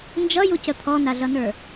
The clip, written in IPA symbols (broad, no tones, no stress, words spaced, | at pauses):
nd͡ʒʌjucə t̪ʰɔnaɮʌnə˞